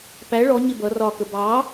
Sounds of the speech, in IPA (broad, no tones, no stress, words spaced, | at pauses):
pæ ɭɔ ɲɪbʌ rɒkə bɑ